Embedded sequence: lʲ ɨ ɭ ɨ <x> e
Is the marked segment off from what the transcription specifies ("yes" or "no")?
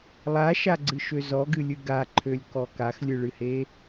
yes